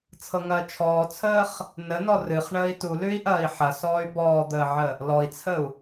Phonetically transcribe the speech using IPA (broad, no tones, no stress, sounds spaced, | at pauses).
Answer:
t͡sʰ ɤ ŋ ɐː t͡ʃʰ ɔː t͡sʰ əː χ | n ə n ɔ r ɨ χ ɳ əː i̯ t u l ʉ i̯ ʔ ɐː i̯ ħ ɐ s ɔː y̯ b ɔː d̪ əː ʕ ə | l ɔ i̯ t͡sʰ ə u̯